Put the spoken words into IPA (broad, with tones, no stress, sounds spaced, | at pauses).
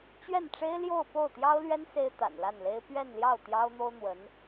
t͡ɕ ɥ ɛ˥˩ n ʈ͡ʂ e˥ ɪ̯ l j o˥˧ ʊ̯ p o˥˩ ʊ̯ t̪ j ɑ˥ ʊ̯ l ɥ ɛ˥ n s e˥ ɪ̯ t̪ a̰˨˩ n l a˥˩ n l e˥ ɪ̯ p ɥ ɛ˥˧ n l j ɑ˥˩ ʊ̯ t̪ j ɑ˥ ʊ̯ n̪ o˥ ʊ̯ n̪ w ə˧˥ n